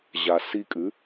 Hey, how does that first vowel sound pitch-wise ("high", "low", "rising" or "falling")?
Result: low